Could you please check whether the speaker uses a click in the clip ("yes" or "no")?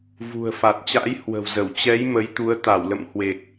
no